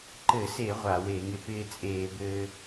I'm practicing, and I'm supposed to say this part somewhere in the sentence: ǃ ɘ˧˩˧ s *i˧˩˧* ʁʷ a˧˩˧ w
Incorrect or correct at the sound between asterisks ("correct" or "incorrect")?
incorrect